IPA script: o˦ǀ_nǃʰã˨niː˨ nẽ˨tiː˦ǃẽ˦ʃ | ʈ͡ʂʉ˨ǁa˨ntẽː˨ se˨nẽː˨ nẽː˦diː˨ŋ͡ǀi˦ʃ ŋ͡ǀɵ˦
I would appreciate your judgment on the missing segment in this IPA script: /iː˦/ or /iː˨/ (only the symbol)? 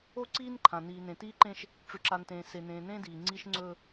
iː˦